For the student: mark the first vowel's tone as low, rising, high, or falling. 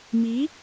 rising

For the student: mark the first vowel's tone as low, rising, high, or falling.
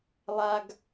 high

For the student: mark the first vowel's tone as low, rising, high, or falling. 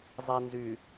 low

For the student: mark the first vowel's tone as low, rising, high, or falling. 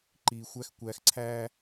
low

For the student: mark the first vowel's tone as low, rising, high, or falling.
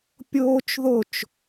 high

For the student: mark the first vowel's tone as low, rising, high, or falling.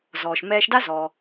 low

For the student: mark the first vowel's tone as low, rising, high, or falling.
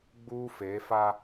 high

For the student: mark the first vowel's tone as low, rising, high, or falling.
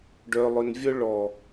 low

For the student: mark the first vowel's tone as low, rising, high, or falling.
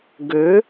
rising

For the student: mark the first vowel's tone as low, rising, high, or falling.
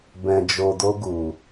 low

